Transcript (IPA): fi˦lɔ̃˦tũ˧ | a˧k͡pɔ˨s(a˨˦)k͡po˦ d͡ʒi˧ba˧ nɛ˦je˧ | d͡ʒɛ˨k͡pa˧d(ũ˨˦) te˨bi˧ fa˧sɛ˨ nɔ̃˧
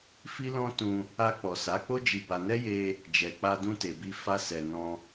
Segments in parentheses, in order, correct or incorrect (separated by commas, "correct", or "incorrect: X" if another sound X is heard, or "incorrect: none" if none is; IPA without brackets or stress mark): correct, incorrect: ũ˧